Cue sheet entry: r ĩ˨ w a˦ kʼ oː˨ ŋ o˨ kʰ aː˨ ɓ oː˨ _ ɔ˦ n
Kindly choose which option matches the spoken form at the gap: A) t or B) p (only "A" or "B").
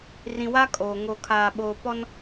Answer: B